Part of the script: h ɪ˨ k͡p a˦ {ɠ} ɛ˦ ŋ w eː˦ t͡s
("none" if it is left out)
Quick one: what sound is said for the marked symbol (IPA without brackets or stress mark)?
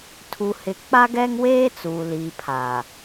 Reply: ɡ